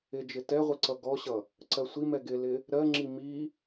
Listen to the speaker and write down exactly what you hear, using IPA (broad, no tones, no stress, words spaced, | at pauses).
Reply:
ɪd͡ʒɪ tɛʁʷɪ ǀʌɡɔɕʌ | ǀɜsʷimɛ ɡɪlɪ | ɾɜŋ͡ǁi mi